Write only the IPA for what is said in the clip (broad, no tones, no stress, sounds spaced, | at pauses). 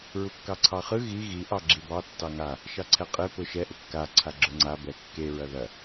ɹ u kː ɑ ǀʰ ɑ χ ɯ ɣ i ɣ i ʔ ɑ ɡ͡ǁ i b ɑ tː ɑ ŋ a | ʃ ɑ ǀʰ ɛ qʼ e p ʊ ʃ ɛ ʔ ʊ kː a ǀʰ a ɡ͡ǁ ʊ ŋ͡ǀ a b ɛ kː e ɹ ɐ ð ɐ